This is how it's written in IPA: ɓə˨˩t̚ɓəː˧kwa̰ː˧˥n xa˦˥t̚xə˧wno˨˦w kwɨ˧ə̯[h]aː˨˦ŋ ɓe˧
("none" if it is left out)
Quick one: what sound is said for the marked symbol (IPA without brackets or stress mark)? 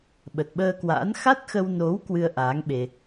ʔ